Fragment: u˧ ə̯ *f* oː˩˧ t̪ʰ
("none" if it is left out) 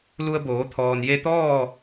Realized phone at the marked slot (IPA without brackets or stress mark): b